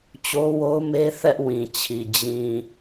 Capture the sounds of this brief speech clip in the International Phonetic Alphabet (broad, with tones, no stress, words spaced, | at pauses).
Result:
t͡ɕo˦wo˦ʊ̯me˦ θɛ˦ʔwĩ˨t͡ɕʰi˨ d͡ʑĩ˨